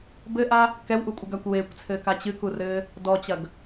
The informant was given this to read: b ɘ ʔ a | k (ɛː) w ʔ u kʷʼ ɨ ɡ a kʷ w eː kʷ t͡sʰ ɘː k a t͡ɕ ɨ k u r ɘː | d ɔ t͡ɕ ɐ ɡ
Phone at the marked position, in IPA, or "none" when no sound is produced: ɛ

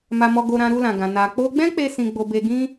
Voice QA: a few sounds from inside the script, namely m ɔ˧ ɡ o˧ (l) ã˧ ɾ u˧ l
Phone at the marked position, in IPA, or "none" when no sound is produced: ɾ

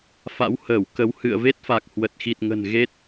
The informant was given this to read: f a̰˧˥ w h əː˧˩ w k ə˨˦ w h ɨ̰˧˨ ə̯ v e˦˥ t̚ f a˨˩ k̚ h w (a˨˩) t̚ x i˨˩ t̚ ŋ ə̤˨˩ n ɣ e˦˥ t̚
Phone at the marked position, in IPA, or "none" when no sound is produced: ə˨˩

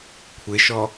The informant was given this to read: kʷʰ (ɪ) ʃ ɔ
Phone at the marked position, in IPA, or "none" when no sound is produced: ɪ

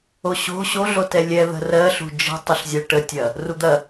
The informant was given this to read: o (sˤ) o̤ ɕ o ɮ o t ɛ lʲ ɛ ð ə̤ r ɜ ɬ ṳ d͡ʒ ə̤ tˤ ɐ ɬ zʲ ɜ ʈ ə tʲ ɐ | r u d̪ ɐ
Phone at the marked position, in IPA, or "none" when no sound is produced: ɕ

